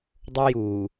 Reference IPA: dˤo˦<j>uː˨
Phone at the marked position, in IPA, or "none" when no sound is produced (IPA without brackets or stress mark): j